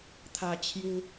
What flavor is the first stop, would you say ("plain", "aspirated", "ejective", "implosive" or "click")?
aspirated